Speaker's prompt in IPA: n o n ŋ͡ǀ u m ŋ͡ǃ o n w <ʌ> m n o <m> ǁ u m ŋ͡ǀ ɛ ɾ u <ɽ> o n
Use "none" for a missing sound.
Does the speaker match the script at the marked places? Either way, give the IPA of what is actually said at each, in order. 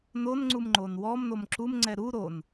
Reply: ɔ, m, ɾ

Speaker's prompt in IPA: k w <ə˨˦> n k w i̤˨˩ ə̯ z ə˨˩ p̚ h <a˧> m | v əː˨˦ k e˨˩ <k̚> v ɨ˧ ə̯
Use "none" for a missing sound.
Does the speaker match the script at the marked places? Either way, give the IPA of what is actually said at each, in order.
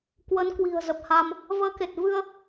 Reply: ə˨˦, a˧, t̚

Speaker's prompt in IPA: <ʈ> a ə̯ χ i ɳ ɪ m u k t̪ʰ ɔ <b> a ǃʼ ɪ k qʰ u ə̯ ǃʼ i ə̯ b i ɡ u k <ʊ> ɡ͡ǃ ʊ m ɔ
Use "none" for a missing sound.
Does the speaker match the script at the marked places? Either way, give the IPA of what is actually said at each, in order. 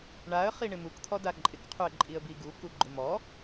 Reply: ɳ, d, u

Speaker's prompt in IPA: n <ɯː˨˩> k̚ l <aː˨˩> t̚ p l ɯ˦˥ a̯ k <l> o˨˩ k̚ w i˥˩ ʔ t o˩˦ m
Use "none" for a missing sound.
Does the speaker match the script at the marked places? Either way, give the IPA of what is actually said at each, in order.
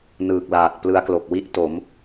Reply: ɯː˨˩, aː˨˩, l

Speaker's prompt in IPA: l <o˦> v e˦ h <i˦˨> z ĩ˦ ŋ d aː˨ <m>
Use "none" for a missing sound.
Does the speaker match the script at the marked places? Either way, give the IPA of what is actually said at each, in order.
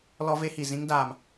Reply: ɔ˦, i˨, m

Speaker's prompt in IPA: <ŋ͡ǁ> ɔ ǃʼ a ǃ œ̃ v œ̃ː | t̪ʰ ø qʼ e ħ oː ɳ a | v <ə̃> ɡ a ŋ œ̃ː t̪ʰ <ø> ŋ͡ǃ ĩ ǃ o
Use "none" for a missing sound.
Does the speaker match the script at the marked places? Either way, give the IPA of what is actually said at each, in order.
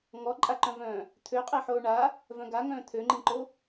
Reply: ŋ, œ̃, ø

